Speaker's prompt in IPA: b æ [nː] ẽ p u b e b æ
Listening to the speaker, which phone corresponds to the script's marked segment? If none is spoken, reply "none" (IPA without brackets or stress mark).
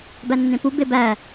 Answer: nː